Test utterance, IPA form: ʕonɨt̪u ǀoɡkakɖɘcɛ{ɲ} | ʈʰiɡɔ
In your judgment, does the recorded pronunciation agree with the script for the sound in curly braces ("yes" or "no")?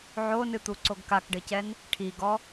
no